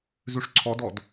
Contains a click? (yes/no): yes